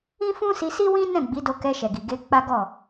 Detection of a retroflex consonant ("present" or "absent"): absent